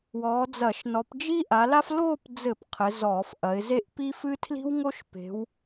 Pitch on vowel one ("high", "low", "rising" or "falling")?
rising